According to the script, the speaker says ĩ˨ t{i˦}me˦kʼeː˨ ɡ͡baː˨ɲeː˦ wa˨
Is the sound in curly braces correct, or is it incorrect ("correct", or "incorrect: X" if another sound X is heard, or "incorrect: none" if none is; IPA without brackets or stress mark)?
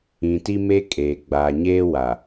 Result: correct